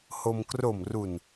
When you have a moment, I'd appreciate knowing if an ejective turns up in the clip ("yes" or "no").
no